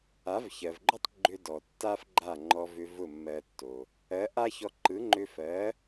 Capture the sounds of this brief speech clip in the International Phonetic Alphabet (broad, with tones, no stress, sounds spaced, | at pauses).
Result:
a˩˥ v ç ɜ˩ v ɡ͡ǃ ʏ˥ tˤ ɡ͡ǃ ʏ˧ d ɔ˩ tː a˥ f ɡ͡ǃ a˥˩ ŋ͡ǃ ɔ˧ v ʏ˧ v ʊ˥˩ mː ɜ˧ tː o˩ | ɜ˩˥ ʔ a˥ ç ɔ˧ ǃ ɯ˩˥ ŋ͡ǃ ʏ˧ f ɜ˩˥